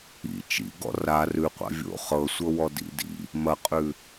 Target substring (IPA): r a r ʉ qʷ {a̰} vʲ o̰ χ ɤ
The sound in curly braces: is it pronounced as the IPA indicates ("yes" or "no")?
yes